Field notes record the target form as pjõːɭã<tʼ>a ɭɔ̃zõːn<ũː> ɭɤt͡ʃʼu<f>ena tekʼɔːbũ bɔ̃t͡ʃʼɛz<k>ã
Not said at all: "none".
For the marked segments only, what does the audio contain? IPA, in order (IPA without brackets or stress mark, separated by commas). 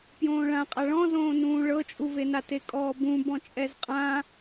qʼ, ũː, v, qʼ